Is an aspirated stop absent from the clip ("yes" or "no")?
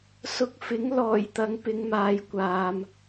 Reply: yes